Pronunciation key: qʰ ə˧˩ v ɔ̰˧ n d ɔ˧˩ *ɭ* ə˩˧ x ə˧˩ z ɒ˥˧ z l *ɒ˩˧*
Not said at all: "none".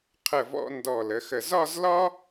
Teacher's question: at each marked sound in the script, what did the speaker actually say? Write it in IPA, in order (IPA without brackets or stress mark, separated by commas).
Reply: l, ɒ˥